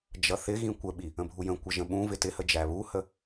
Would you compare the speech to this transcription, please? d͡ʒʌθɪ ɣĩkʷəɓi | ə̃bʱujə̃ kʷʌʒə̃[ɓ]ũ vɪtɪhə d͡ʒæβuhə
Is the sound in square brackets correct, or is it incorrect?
correct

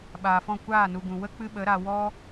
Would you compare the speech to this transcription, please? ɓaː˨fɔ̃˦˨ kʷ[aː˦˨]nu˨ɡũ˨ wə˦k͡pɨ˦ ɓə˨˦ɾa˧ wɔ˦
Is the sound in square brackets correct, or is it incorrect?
correct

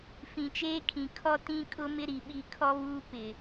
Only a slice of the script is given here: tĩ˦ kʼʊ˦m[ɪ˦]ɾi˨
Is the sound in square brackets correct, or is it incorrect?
correct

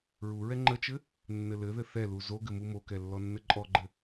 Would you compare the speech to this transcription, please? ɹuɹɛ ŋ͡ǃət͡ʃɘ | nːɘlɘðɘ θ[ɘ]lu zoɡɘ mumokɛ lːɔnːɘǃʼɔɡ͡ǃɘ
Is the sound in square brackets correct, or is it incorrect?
incorrect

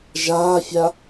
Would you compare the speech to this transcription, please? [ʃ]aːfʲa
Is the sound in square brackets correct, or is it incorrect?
incorrect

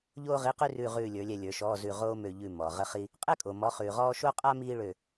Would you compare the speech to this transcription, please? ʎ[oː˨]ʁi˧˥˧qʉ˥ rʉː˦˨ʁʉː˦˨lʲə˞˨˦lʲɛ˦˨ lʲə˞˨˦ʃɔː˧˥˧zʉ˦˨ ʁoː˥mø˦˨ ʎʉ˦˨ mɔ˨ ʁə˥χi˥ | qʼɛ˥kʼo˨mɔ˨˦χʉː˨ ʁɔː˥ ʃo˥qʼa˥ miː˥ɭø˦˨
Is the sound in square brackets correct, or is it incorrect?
incorrect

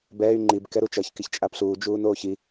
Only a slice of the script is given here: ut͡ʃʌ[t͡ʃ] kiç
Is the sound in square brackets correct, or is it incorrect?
incorrect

